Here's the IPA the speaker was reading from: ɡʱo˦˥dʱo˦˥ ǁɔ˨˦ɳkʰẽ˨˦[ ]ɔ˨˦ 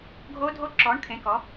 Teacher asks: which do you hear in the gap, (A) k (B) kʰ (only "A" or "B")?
A